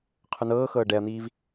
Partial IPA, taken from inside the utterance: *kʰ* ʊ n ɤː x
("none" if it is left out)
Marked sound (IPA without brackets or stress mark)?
qʰ